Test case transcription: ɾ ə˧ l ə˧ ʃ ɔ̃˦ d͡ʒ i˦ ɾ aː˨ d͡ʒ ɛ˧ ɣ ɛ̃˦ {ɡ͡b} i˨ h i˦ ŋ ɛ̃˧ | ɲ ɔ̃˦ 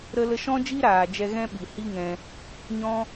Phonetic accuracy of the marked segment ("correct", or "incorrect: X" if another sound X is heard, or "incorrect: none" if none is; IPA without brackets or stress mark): incorrect: ɓ